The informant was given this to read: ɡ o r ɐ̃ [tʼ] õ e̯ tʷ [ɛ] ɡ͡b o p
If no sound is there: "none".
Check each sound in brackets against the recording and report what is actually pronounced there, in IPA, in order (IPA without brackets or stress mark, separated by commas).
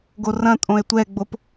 tʼ, ɛ